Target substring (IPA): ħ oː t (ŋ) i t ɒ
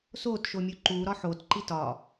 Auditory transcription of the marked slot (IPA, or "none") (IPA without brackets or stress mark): ǃ